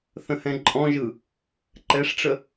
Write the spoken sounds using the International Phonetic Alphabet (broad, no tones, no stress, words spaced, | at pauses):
θə̃hɛ̃ǃʼɔ̃ʒɯ | ǃɛʂʈ͡ʂə